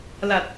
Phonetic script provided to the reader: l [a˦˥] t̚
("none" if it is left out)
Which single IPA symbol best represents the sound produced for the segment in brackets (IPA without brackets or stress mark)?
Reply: a˨˩